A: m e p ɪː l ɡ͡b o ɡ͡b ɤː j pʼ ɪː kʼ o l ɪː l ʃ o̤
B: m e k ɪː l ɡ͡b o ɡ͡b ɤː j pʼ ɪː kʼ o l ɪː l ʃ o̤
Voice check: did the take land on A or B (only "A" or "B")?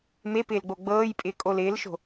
A